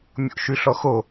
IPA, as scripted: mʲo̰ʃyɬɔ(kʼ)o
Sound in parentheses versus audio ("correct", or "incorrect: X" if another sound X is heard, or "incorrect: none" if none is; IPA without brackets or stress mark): incorrect: x